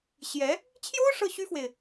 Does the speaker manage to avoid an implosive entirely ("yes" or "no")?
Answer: yes